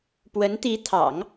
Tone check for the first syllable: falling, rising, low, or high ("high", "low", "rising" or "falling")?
rising